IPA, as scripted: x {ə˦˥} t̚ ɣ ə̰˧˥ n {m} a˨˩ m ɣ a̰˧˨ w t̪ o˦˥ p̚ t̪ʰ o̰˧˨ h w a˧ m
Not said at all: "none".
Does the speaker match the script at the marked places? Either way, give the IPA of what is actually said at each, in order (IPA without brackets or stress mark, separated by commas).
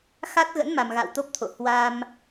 a˦˥, m